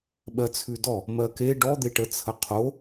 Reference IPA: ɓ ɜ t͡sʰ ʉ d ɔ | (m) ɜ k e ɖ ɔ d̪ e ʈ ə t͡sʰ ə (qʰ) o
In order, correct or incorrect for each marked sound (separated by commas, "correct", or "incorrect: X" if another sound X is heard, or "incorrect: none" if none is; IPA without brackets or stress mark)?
correct, correct